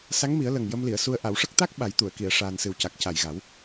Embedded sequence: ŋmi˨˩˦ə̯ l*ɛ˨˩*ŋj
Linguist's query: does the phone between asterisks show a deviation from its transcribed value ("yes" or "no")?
yes